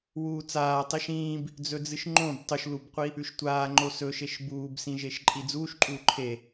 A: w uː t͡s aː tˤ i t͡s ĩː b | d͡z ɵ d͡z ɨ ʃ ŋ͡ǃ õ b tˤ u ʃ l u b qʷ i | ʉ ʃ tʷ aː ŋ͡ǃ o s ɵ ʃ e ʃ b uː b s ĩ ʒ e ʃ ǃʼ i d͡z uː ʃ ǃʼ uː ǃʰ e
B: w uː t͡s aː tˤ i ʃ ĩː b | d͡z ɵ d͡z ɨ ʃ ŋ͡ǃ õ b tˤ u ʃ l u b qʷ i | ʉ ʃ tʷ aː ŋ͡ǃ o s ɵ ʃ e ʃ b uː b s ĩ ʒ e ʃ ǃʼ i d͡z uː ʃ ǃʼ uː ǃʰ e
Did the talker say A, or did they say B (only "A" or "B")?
B